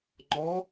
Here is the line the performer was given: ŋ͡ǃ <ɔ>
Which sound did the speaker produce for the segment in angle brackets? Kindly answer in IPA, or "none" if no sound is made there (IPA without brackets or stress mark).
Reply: ɔ